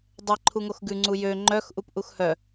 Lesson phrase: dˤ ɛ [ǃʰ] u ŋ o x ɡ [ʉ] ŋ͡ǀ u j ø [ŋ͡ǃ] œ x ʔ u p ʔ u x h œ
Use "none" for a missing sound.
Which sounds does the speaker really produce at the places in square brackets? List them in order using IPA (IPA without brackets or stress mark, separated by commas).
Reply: ǃʰ, ʉ, ŋ͡ǃ